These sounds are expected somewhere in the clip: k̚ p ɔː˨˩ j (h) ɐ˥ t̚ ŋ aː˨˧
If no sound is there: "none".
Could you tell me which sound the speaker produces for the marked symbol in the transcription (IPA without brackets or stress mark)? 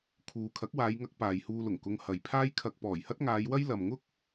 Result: h